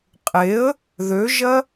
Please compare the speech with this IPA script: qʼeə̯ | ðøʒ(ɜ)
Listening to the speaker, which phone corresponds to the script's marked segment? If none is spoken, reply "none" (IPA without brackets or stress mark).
ɜ